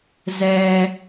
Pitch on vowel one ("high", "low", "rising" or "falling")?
low